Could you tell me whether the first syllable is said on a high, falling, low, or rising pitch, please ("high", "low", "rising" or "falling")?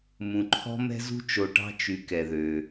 low